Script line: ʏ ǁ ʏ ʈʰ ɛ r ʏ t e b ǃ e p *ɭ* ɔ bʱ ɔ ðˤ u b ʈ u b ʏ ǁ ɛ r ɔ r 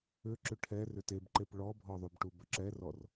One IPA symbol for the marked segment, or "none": ɭ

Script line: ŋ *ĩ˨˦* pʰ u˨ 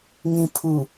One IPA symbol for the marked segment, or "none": ĩ˨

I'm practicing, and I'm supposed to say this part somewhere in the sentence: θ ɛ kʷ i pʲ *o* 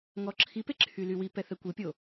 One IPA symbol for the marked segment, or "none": o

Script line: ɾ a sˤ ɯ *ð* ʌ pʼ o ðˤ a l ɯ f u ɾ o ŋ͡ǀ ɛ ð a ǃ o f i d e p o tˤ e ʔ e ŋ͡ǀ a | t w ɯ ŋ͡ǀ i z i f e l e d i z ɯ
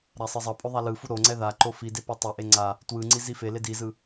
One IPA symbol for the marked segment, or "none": zˤ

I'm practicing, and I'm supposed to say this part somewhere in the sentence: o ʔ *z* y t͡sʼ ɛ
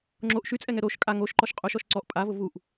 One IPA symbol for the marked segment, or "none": ʃ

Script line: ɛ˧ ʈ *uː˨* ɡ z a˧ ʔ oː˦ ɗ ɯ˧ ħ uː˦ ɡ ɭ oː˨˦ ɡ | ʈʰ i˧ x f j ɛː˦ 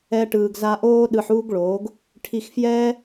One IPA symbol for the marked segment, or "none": ɯː˨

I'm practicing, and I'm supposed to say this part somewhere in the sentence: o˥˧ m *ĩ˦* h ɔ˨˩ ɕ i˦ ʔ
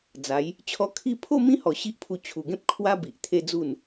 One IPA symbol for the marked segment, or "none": ĩ˦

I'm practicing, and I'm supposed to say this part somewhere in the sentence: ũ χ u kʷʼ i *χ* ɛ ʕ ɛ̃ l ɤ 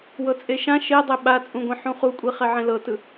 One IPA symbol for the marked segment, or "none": χ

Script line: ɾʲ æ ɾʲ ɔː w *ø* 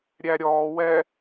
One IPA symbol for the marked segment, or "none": ɛ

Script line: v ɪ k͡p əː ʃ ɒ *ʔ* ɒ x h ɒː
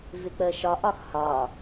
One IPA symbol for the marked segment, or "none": ʔ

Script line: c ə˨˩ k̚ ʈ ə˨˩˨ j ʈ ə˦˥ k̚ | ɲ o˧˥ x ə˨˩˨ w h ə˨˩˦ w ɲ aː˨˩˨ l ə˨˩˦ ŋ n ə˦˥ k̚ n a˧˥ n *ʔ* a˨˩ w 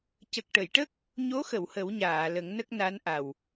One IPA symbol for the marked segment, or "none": ʔ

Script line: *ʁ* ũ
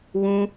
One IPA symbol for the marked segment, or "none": w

